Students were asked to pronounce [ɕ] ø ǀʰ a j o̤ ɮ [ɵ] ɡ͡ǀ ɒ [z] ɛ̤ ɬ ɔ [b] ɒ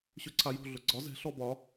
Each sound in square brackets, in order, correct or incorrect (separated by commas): correct, correct, correct, correct